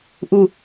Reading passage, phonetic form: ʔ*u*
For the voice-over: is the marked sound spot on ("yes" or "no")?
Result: yes